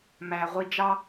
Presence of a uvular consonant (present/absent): present